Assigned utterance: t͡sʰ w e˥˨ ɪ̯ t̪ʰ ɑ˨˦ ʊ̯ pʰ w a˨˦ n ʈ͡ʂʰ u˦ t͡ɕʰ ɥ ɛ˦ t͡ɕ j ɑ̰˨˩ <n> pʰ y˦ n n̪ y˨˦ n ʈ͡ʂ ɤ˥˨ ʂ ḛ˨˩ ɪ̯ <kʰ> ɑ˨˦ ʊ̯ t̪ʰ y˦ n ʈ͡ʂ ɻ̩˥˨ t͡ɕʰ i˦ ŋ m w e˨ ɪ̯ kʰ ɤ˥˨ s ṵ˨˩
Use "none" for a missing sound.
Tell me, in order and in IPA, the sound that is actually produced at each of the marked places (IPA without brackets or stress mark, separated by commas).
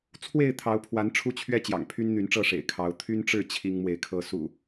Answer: ŋ, kʰ